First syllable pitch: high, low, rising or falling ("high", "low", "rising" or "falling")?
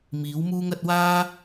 rising